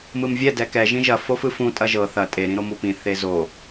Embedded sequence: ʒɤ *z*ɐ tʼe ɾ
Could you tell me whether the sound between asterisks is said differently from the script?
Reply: yes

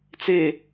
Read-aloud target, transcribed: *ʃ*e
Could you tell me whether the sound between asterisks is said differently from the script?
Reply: yes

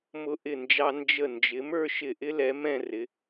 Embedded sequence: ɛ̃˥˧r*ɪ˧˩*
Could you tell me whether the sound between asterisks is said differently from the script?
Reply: yes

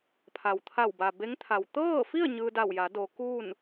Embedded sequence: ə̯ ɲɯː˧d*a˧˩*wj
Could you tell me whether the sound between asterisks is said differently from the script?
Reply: no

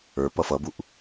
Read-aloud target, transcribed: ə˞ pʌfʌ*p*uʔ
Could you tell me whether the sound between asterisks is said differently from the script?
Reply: yes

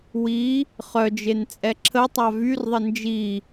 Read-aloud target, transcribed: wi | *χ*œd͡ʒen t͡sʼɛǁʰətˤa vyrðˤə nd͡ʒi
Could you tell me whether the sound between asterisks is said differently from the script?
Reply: no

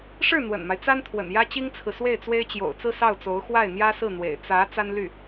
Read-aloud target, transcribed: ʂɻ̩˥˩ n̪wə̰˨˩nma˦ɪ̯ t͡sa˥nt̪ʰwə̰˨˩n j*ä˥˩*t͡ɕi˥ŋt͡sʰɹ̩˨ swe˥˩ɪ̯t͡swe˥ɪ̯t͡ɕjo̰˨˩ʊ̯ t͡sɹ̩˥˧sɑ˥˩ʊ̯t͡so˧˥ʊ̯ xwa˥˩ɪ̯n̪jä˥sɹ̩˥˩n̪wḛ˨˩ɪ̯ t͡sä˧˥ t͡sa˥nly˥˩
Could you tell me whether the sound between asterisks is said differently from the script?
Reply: yes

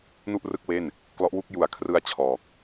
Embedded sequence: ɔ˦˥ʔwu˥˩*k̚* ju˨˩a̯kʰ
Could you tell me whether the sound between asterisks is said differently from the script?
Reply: no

